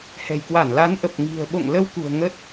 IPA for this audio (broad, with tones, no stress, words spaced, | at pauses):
hɛ̤˨˩jkwa˧˩nla˨˦n ʔə˨˩p̚ ŋi̤˨˩ə̯ɓo̰˧˨ŋ lə˧wkṳ˨˩ə̯ ŋə˦˥t̚